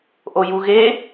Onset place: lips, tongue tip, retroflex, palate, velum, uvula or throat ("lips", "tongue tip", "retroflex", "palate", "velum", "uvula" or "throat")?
throat